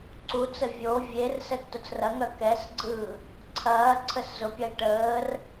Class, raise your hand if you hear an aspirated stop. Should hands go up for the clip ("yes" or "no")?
yes